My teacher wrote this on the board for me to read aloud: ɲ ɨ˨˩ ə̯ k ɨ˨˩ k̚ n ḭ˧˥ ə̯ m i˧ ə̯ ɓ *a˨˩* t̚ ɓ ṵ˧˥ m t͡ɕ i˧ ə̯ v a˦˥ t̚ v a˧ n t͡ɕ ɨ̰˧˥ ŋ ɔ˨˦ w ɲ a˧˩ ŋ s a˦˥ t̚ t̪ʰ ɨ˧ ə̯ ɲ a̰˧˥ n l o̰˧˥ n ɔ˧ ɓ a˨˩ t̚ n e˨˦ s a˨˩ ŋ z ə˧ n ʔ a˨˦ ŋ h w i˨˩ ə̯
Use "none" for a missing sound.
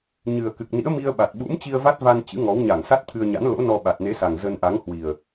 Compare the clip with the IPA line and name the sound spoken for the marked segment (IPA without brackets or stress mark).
a˨˩